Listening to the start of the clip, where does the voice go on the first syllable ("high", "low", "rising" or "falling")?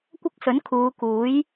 high